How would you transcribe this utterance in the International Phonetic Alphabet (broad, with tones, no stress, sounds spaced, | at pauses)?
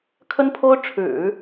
kʰ ə˥ n pʰ o˥ ʊ̯ ʈ͡ʂʰ ɻ̩˨˩˦